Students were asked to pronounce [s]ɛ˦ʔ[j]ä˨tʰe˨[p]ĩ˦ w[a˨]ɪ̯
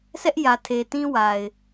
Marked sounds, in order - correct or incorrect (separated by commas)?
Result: correct, correct, incorrect, correct